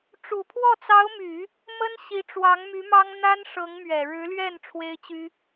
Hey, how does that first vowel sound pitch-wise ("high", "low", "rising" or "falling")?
low